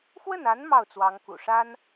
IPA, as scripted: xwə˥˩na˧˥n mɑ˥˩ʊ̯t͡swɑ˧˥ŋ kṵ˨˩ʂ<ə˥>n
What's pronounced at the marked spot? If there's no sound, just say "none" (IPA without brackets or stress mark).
a˥